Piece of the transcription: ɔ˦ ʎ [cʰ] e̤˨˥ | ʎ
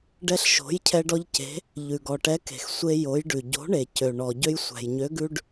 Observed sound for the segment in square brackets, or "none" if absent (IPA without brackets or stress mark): c